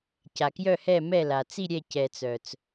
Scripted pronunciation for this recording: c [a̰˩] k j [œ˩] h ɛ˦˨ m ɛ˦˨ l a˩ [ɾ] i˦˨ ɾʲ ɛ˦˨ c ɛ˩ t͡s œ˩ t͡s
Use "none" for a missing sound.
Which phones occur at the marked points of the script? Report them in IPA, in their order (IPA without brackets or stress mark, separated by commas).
a˩, œ˦˨, t͡s